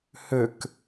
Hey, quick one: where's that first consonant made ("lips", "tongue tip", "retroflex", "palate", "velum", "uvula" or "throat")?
throat